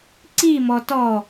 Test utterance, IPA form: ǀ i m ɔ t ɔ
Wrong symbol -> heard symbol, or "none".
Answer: none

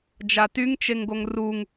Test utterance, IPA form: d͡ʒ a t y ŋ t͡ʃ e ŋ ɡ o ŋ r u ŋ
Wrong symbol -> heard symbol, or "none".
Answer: none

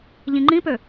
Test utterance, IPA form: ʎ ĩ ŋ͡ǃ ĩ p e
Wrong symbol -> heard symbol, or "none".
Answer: e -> ø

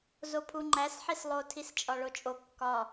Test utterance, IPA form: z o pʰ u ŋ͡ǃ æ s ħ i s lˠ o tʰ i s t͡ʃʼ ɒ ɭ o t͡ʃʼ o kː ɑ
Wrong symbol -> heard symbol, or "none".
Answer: ɑ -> ɒ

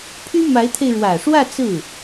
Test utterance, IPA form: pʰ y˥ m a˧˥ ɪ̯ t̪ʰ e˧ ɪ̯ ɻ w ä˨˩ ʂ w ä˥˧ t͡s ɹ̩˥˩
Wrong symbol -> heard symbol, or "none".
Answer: none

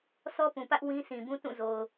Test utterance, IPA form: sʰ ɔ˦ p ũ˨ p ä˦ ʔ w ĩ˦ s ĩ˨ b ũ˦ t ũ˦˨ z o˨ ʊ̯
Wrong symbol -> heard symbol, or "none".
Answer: none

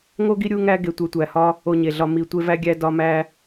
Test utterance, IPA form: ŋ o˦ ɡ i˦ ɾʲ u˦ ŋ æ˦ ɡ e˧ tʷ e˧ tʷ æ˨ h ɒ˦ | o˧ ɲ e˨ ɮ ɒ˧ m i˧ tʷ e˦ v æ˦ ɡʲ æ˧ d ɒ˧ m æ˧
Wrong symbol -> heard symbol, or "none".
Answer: none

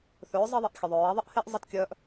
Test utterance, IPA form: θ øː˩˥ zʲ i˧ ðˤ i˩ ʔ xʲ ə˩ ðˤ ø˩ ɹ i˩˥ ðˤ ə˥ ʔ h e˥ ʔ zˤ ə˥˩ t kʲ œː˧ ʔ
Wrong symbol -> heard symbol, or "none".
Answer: zʲ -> zˤ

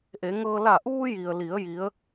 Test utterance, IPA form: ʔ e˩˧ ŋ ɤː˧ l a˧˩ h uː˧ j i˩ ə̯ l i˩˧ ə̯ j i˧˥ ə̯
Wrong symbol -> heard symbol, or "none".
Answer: h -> ʔ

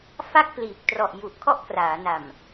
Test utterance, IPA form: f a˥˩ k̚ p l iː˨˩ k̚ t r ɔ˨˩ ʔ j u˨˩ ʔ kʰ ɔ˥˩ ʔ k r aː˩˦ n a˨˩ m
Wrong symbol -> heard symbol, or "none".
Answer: none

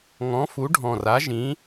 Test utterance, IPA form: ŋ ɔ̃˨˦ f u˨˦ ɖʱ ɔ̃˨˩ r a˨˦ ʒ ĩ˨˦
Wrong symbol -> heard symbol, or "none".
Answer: none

